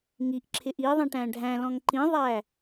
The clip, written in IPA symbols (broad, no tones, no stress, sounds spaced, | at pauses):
ŋ i ʔ ǁʰ ɪ ʔ i ðˤ ĩ ʈ æ̃ ɖʱ æ̃ l ɔ̃ ŋ ǃ ĩ ðˤ æ